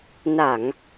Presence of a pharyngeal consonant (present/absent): absent